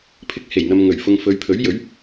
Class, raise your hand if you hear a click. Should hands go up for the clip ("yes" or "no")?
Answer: no